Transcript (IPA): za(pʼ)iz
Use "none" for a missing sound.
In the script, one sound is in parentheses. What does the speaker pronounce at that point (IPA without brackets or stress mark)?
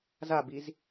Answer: b